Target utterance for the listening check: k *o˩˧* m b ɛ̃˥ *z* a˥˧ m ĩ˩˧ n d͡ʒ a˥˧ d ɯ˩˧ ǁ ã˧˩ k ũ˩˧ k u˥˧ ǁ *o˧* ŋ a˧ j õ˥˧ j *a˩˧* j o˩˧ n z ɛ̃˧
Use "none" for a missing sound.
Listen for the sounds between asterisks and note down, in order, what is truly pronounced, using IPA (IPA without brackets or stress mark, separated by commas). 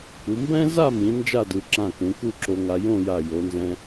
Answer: u˩˧, z, o˧, a˧˩